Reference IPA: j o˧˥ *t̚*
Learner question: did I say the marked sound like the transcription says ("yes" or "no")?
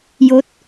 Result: yes